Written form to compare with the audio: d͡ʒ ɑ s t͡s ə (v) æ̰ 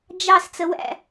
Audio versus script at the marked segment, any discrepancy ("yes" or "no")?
yes